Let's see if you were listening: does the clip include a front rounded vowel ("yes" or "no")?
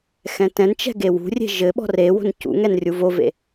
no